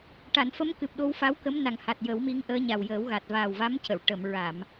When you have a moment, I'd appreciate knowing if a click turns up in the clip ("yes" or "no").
no